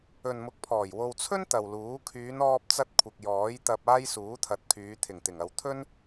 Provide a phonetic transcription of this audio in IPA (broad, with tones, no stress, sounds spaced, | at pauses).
ɵ˨ n m ʊ˨˥ k̚ pʰ ɔː˨˩ j w o˨ w t͡sʰ ɵ˥ n t̪ ɐ˨ w l uː˨˥ kʰ yː˨˧ n ɔː˧ p̚ t͡s ɐ˧ t̚ kʷʰ ɪ˨ k̚ j ɔː˨˥ j t̪ ɐ˧ p̚ aː˥ j s uː˨˥ t̪ʰ ɐ˨˥ t̚ kʰ yː˨˧ t̪ʰ ɪ˨˩ ŋ t̪ ɪ˨˩ ŋ ɐ˨ w t̪ʰ ɵ˥ n